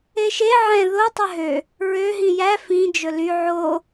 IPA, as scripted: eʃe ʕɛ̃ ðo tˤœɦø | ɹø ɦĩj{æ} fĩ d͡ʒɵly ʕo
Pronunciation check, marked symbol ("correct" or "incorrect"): correct